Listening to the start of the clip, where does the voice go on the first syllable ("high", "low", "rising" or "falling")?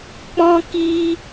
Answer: high